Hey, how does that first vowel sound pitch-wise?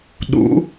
rising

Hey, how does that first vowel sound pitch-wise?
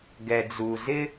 low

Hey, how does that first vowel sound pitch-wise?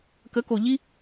rising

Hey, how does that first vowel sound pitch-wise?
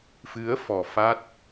rising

